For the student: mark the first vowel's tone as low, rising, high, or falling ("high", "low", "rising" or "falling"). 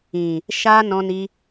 low